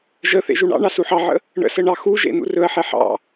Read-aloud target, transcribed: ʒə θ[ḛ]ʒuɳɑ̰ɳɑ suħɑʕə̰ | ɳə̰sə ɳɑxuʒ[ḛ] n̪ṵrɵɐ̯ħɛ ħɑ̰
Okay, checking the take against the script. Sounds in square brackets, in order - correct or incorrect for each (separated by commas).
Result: correct, correct